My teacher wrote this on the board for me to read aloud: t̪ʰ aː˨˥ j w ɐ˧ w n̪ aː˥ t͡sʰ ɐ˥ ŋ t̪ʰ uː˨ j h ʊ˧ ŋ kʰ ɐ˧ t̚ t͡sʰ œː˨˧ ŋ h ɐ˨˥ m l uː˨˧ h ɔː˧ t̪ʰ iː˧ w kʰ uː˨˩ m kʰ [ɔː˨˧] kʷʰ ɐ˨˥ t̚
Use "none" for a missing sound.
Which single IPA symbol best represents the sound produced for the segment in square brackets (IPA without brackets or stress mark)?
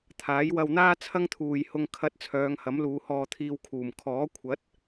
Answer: ɔː˨˥